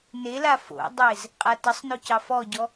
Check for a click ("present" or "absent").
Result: absent